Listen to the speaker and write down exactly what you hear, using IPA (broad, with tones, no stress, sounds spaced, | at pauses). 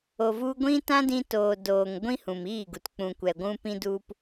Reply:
o˨ v u˧ ɡʷ ĩ˦ t ã˦ d ĩ˧ t oː˨ d oː˨ ŋ ɡʷ ĩ˦ h ũ˨ m iː˦˨ ɡ u˨ t k͡p ũ˨ kʷ ɛ˨ ɡʷ ũ˧ p ĩ˦ d u˦ p